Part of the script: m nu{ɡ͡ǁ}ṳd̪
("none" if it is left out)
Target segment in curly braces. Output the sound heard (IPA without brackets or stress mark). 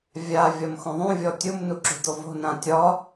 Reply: ǁ